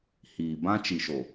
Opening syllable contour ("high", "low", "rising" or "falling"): low